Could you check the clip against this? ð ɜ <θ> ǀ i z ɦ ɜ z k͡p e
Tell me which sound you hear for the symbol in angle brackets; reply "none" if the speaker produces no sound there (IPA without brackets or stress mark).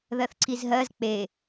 θ